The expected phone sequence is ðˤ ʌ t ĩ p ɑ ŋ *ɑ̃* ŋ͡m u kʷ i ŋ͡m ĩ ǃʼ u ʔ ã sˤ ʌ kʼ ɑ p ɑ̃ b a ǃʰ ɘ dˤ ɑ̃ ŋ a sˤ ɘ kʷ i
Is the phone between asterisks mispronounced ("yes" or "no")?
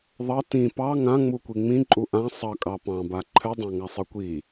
yes